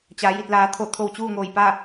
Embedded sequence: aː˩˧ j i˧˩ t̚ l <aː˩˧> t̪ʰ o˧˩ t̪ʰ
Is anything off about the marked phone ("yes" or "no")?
no